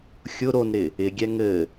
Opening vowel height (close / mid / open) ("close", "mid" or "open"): close